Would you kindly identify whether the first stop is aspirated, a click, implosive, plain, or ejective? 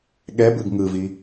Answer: implosive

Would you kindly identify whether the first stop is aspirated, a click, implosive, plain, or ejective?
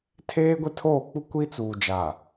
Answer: aspirated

